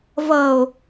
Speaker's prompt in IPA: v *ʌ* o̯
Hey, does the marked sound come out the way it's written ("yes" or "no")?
yes